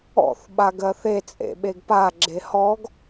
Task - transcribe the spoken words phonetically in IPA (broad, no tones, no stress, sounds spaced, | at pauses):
ɔ̰ θ ɓ a ɡ ɜ θ e t͡sʼ ḛ ɓ e ɡ p a ɡ͡ǁ e h ɔ ɡ